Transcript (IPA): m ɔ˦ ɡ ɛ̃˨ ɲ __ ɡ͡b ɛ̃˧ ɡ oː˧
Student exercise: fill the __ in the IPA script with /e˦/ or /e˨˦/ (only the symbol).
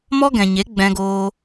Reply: e˨˦